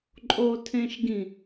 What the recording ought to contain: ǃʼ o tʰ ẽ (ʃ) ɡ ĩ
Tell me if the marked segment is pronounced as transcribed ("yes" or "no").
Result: yes